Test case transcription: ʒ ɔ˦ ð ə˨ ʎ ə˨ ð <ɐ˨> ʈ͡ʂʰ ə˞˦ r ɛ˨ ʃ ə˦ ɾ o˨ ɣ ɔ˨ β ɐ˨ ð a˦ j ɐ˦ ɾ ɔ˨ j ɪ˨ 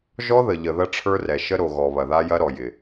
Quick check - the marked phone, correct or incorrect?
incorrect: ɐ˦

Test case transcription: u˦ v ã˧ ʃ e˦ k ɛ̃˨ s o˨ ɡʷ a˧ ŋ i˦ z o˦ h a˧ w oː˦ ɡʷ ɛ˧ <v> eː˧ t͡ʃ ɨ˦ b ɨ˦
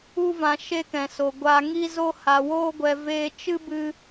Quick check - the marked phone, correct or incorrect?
correct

